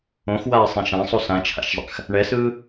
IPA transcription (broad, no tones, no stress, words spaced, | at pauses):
õxwaːsˤɛ̃ ʃãsˤu sãt͡ʃʰa̰ʃzˤa̰x | ɳɛsɯː